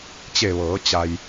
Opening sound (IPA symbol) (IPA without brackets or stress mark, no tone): t͡ɕ